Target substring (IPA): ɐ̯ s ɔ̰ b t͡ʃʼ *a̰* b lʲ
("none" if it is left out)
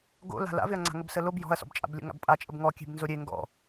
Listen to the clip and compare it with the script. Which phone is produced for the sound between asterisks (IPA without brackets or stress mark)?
a̰